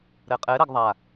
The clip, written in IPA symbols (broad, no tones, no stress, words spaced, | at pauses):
ɾɛqʼɛ ɾɛɡðˤa